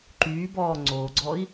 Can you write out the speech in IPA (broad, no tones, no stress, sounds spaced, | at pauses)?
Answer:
ǃ yː b ɔː ŋ͡ǀ oː ɡ͡ǀ ɔ i̯